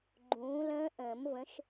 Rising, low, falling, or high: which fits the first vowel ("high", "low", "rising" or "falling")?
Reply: rising